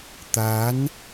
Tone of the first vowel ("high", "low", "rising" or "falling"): rising